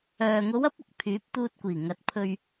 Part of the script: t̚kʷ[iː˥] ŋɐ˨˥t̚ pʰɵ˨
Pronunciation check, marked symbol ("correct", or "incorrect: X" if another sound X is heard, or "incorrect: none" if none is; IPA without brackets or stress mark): incorrect: iː˨˩